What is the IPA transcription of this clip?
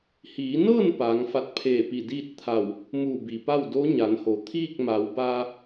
hiː˩˧nɤː˥˨n paː˩˧ŋfa˧t̚pʰeː˧˩pi˧˩ diː˥˨t̚t̪ʰa˧˩w | muː˧˩bi˩pa˥˨w do˧˥ ɲa˩˧nho˩˧ t̪ʰiː˥˨k̚ma˩˧wbaː˧

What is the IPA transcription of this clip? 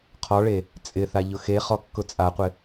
qʰɔɭe | t͡sʼɪθa ʎʊxeχɔ kːʊt͡sʼaqʷɪ

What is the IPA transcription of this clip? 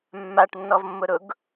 mːaʈnːɔvmːʊɾʊɡ

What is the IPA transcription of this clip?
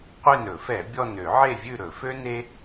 qʷe˦˨nɵ˧˩˧fɛ˧˩˧ bʲɔ˦˨n ø˧˩˧ʕe˦˨vʲʉ˦˨ ɾɵ˧˩˧fø˥ne˥

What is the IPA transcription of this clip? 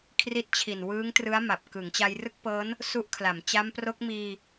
kʰri˦˥t̚t͡ɕʰi˨˩nwɯː˦˥ŋ trɯ˦˥a̯ma˨˩p̚ kɯ˩˦ŋt͡ɕa˧jrɯ˥˩k̚pɤː˦˥n | su˦˥ʔkʰla˩˦m t͡ɕa˦˥mpro˦˥k̚ miː˧

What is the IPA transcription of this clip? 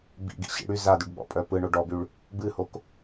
bḭɡḭɕḭ ɽy zadyɖɓɔ̰pʼœ pɯɳo ɖɔbyɭ | bɨhok

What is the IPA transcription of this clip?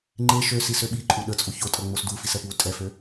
ŋ͡ǃe ʃøsis øɓiǃʼu ɗət͡sʼu çotʼʌ ŋ͡mosdufis ɛpwutʼɛfø

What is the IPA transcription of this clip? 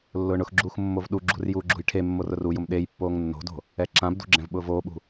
lːʊːɳʊxɡ͡ǁuːx mːovɗuɡ͡ǁṳr juːɡ͡ǁṳjʈʰemːor ʊrujʊm ɗejpːoːŋ nːo̤do̤ | ɛǁãbdṳ ɡ͡ǁɛ̃vɓʊːvoːɓṳ

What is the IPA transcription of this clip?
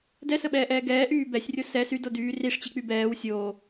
dɛsəɓɛːʔɛː ɡɛːʔyː bɛsʲrʲo sɛ sydo dyː riʂt͡ɕik͡py bɛːw sʲoː

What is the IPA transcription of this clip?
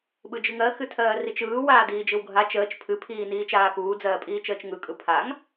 ɓɯd͡ʒɨŋɜ xɨtʰɜːrit͡ʃɯː waːdiːd͡ʒɯwɡʱa t͡ʃəːt͡ʃ pʰɨ pʰiːniːt͡ʃaːkuː d͡zɜːpʼiːt͡ʃəːt͡ʃŋɯ kʼɯpʰaŋ

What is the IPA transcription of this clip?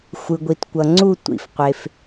xʷɯ˨ɡʷi˨tkʷʌ˨ŋ͡ǀu˥˧ tʷḭ˨fqʷe˨f

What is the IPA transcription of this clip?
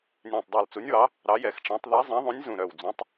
nʲæ̃˧˩tˤdˤɑ˧˩lt͡su˨˥nʲwɑ˨˥ | ɾɑ˨˥jɛ˧˩˧xʈ͡ʂæ̃˨˥tˤ ðɛ˨˥zˤɛ̃˨˥ðˤũ˨˥nʲ zũ˧˩ɾœ˧˩wd͡zũ˨˥tˤ

